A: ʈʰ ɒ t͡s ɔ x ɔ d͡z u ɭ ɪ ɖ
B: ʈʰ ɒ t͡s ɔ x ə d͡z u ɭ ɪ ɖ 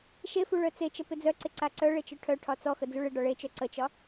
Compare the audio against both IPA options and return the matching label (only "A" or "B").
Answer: B